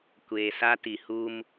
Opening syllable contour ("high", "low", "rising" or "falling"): low